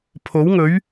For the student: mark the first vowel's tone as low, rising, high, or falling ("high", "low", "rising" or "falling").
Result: rising